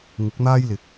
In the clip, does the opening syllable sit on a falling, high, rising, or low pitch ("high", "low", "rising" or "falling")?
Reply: rising